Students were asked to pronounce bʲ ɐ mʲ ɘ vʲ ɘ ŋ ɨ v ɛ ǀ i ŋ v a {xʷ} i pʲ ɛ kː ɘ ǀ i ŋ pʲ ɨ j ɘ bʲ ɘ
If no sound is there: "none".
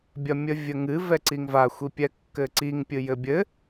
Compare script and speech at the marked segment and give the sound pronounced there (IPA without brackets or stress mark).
xʷ